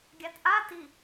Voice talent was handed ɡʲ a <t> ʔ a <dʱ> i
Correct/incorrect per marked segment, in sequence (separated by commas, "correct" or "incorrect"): correct, incorrect